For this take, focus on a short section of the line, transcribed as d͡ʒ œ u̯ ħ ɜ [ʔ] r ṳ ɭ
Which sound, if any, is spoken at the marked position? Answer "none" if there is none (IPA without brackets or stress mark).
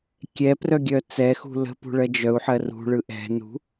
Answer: none